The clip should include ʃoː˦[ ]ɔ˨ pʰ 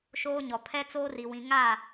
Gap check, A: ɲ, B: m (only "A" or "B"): A